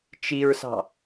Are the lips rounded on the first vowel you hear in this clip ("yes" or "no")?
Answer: no